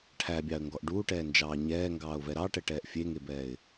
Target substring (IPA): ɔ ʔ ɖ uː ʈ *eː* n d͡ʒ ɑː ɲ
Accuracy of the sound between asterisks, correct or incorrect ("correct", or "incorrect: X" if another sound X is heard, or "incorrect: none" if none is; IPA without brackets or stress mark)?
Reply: incorrect: ɛː